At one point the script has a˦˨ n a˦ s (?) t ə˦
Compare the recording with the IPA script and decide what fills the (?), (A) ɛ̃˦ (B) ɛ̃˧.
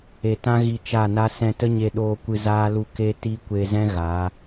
B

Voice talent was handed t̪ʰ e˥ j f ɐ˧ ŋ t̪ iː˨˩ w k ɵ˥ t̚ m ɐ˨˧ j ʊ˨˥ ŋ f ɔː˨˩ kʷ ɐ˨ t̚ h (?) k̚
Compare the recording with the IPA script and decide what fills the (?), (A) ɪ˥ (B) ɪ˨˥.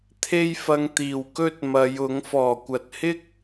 A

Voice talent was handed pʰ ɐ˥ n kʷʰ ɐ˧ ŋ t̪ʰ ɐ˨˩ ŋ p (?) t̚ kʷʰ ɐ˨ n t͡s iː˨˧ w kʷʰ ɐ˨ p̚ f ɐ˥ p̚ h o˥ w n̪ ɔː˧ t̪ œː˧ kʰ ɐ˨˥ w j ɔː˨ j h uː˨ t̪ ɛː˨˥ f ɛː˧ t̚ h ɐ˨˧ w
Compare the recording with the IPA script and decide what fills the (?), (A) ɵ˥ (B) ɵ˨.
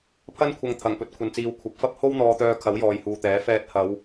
B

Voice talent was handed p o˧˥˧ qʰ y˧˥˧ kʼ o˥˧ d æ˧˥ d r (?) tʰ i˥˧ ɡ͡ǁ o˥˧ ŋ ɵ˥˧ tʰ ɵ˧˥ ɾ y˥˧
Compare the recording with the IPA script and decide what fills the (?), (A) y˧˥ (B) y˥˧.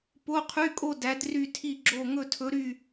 B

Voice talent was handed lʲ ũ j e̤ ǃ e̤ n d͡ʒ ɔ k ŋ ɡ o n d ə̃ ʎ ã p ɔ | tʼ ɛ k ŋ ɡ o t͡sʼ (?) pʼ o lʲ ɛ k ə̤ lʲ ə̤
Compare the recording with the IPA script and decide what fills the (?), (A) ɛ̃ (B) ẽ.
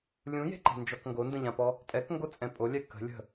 A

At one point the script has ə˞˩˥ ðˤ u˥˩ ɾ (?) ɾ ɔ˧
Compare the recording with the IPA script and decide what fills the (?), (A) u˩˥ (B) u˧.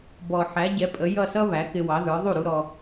B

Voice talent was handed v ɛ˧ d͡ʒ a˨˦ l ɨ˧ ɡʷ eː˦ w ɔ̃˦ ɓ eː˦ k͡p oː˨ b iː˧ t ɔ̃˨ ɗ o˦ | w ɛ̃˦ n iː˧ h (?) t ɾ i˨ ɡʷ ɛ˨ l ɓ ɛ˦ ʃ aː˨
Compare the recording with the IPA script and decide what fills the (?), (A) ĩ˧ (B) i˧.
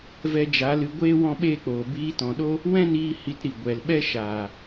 B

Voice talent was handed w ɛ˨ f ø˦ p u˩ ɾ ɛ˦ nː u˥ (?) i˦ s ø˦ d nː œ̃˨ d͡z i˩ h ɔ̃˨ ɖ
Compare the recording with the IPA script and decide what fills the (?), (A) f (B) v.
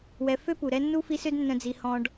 A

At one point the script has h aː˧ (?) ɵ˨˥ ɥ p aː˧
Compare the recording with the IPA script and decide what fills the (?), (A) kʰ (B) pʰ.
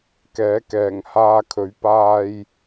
A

